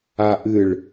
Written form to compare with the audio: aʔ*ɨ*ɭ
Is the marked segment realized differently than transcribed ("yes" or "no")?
no